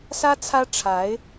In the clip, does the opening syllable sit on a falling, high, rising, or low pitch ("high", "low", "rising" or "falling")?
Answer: high